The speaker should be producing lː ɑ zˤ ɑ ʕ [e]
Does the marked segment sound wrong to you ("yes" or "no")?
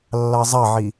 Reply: yes